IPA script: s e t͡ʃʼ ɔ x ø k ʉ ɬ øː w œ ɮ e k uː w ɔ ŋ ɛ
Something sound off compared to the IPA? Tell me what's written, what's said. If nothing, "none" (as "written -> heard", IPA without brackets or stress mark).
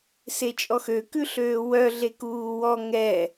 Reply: none